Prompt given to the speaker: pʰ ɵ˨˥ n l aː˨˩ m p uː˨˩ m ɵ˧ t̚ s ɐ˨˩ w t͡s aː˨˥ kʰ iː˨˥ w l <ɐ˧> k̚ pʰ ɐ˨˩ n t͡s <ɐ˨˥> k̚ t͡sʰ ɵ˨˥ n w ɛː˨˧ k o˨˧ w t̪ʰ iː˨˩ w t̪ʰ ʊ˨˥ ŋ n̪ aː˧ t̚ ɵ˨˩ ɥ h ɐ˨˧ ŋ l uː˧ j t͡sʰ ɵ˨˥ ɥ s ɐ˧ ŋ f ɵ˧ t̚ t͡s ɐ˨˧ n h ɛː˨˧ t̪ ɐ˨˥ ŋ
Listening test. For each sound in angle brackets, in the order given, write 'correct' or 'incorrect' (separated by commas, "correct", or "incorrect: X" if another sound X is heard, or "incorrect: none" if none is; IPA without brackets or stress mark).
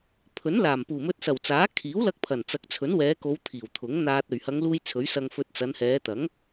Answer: correct, correct